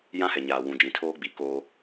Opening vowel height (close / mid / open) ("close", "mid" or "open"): open